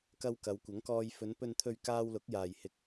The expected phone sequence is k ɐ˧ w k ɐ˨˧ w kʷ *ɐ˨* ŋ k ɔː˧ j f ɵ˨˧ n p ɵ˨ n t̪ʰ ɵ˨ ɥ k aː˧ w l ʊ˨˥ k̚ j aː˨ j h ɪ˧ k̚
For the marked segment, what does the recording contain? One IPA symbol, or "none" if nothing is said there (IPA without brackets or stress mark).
ɐ˨˥